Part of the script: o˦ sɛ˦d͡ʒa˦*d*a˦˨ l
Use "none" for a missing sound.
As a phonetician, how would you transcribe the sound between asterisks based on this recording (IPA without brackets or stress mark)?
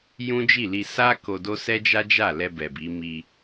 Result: d͡ʒ